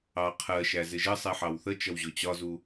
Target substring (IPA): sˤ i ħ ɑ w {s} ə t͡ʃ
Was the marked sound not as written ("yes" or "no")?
yes